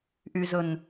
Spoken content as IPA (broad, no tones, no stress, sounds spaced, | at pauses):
ʔ y z ɵ n